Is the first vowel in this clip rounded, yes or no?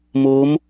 yes